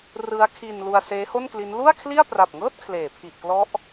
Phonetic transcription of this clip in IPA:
r ɯ˦˥ a̯ kʰ i˧ n l u˧ a̯ s eː˦˥ h o˥˩ n k l i˦˥ n l u˥˩ a̯ kʰ l i˥˩ a̯ p r a˨˩ p̚ ŋ ɤː˥˩ t̚ kʰ l eː˩˦ pʰ i˨˩ ʔ k l ɔ˦˥ ʔ

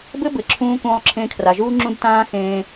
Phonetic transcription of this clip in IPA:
b ɘ˦ b ɘ˨ ǁʰ ũː˧ k ũː˧ lˠ ǁʰ ẽ˧ kʰ r a˨ ʒ uː˦ ŋ͡ǁ ũ˦ d t ãː˦ x ẽː˧

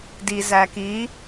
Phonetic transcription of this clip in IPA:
d i z æ k i

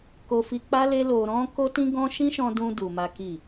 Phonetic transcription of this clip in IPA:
k o˧ f i˧ k͡p a˦ l e˦ l o˧ ɾ ɔ̃˦ k o˦ t ĩ˦ ɡ ɔ̃˦ ʃ ĩ˦ ʃ ɔ̃˧ d ũ˧ d u˧ m a˦ k i˦˨

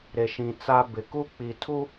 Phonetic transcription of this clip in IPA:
ɾ e˨ ʃ ĩ˨ t͡s a˦ b ɪ˨ k u˦ k͡p i˨ tʰ u˦

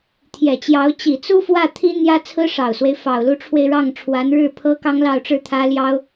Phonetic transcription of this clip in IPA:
t̪ʰ j ɛ˨˩ t͡ɕ j ɑ˧˥ ʊ̯ t͡ɕ i˨˩ t͡s u˥ f w ä˥˩ t̪ʰ i˥ n̪ j ä˥ t͡sʰ ɹ̩˥ ʂ ɑ˨˩ ʊ̯ s w e˦ ɪ̯ f ɑ˨˩ ʊ̯ l u˧˥ ʈ͡ʂʰ w e˧ ɪ̯ ɻ ɑ˥˩ ŋ ʈ͡ʂʰ w a˧˥ n ɻ ɻ̩˥˩ pʰ ɤ˥ k ɑ˥ ŋ l ɑ˥˩ ʊ̯ ʈ͡ʂ ɻ̩˥ t̪ʰ ä˥ l j ɑ˥ ʊ̯

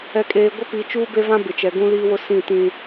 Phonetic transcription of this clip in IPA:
ɛ˨ kʼ eː˨ ɡʷ ɪ˦ p i˨˦ t͡ʃ uː˦ b e˦ v ã˦ b ɪ˨ t͡ʃ ɛ˨ ɡ ũ˦ l iː˦ w ʊ˦ s ĩ˦˨ t ĩ˦

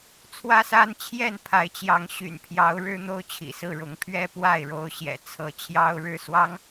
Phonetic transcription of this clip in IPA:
t͡sʰ w ä˦ s a˦ n t͡ɕʰ j ɛ˥˨ n pʰ a˨˦ ɪ̯ t͡ɕ j ɑ˨˦ ŋ ɕ y̰˨˩ n pʰ j ɑ˨˦ ʊ̯ ɻ ɻ̩˦ n̪ o˦ ʊ̯ t͡ɕʰ ḭ˨˩ s ɹ̩˥˨ ɻ ʊ˨˦ ŋ pʰ ɥ ɛ˦ p w a˥˨ ɪ̯ ɻ o˥˨ ʊ̯ ɕ j ɛ̰˨˩ t͡sʰ ɤ˨˦ t͡ɕʰ j ɑ˦ ʊ̯ ɻ ɻ̩˥˨ s w ɑ˦ ŋ

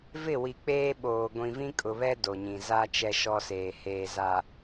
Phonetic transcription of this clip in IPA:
v ɪ˦˨ w i˨ k͡p eː˦ ɓ oː˨ ɡʷ ĩ˨ v ĩ˦ kʼ ʊ˨ β ɛ˦ d o˨ ɲ ĩ˨ z a˦ t͡ʃ ɛ˦ ʃ ɔ˦ s eː˨ h eː˨ z a˨

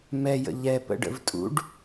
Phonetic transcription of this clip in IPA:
m ɛ j ə̰ ʎ ɛ p ə̰ ɖ ə̰ v tʼ ṵ ɖ

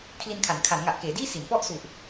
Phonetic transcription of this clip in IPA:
kʰ l i˧ n kʰ a˩˦ n kʰ a˩˦ n ŋ a˨˩ ʔ k eː˩˦ d iː˥˩ s i˩˦ n p ɔ˥˩ ʔ s u˨˩ ʔ

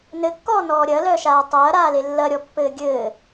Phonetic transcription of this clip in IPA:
n ɘ kː ɔː n ɔː ɾʲ ɐː l œː ʃ aː tˤ ɐː ɾ aː l e lː ɐ ɾʲ ɔ pː ɘː ɡʲ ɘː

